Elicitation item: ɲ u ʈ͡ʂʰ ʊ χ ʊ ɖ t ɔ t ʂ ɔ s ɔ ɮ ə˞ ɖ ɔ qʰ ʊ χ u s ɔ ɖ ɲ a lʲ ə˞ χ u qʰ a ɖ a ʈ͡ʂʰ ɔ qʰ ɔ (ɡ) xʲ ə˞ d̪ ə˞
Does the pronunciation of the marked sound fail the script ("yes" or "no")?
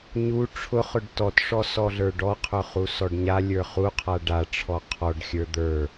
yes